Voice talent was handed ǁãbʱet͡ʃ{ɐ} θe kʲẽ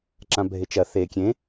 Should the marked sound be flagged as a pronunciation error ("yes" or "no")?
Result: no